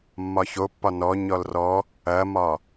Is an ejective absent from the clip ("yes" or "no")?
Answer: yes